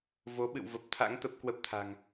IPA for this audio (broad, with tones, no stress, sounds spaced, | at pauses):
v o˨˦ ɓ ɨ̰˧˨ w v ə˨˩ p̚ t̪ʰ a̰˧˥ ŋ t̪ ə˦˥ p̚ k w ə˦˥ p̚ t̪ʰ a̤˨˩ ŋ